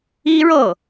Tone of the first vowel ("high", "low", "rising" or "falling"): high